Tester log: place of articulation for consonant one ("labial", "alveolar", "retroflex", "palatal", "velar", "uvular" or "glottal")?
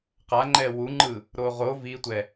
uvular